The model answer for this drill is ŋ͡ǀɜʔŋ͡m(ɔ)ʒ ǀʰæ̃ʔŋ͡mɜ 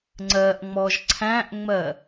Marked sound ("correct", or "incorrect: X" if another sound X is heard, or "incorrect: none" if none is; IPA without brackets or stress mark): correct